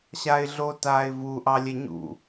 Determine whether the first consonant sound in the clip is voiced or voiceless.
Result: voiceless